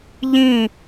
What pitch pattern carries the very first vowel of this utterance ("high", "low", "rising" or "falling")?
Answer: falling